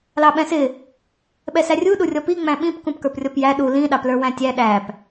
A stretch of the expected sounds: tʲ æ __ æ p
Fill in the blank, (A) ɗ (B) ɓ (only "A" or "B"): A